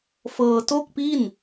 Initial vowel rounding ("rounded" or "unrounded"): unrounded